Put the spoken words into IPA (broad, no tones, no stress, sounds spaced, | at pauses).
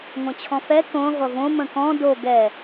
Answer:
ŋʷ ɐ̃ t͡ɕʰ ɔ̃ f ɛ k õ ʁʷ ɐ v õ m ə̃ k ɔ̃ d o ɡ ɛ